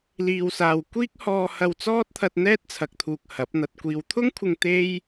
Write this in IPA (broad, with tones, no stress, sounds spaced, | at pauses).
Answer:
l iː˨ w s aː˨ w kʷ iː˥ k̚ h ɔː˧ h ɐ˧ w t͡s ɔː˥ t̚ t̪ʰ ɐ˧ t̚ n̪ ɛː˥ t̚ t͡sʰ ɐ˨ k̚ t̪ʰ uː˨ k̚ h ɐ˨˥ p̚ n̪ ɐ˧ t̚ kʷ iː˨ w t̪ʰ ʊ˥ ŋ kʷʰ ɪ˧ ŋ t̪ e˥ j